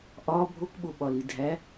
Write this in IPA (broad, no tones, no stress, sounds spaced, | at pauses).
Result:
ʔ ɒ bʱ o k ɓ o ɓ ɒ l i dʱ æ